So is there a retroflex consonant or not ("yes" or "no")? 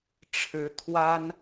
yes